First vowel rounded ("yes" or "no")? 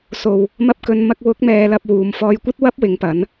yes